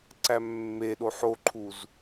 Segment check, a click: present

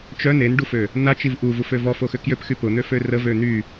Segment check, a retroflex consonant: present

